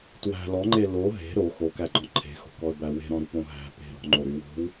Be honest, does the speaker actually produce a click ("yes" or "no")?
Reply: yes